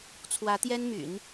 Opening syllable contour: rising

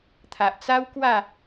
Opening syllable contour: low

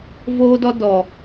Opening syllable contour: high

